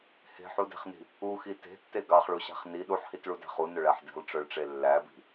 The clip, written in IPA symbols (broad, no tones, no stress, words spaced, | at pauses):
he̤ħude̤χni̤ | uxi te̤tːe ɡɑχɭuɕæ̤χ ni ɗuħhitɭudæ̤χ unøɭæħ di̤lˠʈ͡ʂœɭʈ͡ʂe lːæbi̤